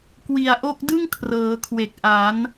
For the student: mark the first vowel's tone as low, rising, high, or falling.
low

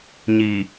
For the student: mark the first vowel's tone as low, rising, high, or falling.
low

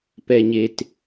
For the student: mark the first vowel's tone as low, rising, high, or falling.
low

